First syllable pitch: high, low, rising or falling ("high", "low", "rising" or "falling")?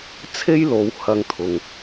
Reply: high